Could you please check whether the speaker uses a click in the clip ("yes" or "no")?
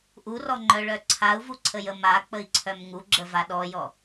yes